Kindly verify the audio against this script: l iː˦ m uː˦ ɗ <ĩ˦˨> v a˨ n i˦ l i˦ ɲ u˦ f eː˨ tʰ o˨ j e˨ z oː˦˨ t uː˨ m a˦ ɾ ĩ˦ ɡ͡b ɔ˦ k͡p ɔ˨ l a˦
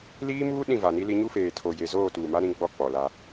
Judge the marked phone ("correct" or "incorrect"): correct